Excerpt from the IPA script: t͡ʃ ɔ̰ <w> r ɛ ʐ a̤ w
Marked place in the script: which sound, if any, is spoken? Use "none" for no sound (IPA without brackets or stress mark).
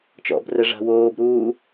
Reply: b